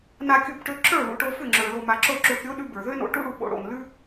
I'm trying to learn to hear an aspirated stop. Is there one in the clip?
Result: no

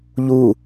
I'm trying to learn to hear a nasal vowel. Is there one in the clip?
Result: no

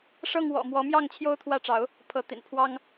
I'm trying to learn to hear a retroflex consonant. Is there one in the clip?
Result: yes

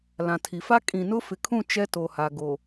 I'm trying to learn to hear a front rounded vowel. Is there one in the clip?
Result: no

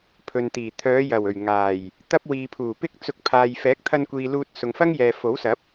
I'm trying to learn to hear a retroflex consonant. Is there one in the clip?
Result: no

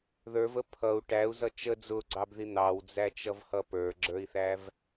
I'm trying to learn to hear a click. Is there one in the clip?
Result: yes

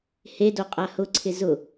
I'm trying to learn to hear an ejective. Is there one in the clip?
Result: yes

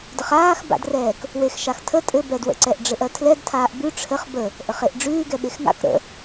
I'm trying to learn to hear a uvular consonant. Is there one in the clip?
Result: yes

